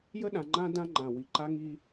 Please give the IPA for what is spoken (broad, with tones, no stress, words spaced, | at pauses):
jə˦ɗã˨ŋ͡ǃã˦ dã˦ŋ͡ǃã˨ wi˨ ǃa˦ŋi˦